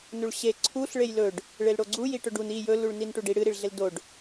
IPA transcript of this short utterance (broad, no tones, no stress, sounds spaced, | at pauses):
n u ɭ ɕ e ǀʰ u ɬ ɭ e j l ɵ ɖ | ɭ e l ɽ o ɡ͡ǀ u j i ʈ ɵ ɖ u n i j ɵ l u ɭ n i n ʈ u ɖ i ɽ ɨ ɾ i ɭ ɮ e l d o ɖ